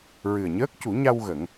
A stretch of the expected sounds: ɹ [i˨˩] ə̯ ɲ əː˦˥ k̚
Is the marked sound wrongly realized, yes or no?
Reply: yes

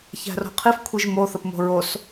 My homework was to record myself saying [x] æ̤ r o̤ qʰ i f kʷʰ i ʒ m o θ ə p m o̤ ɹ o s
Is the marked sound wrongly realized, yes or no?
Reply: yes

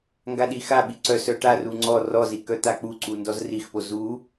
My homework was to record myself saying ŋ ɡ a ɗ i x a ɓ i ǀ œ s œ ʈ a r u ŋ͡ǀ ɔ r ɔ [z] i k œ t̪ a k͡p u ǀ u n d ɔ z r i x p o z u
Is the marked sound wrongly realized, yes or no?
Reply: no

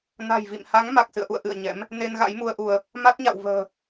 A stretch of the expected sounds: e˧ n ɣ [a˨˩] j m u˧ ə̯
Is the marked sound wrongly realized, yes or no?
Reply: yes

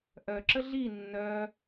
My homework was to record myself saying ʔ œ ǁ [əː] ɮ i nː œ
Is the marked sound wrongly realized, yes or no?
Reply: yes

